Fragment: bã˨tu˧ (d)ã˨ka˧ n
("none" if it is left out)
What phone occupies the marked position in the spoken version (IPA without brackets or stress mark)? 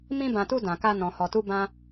d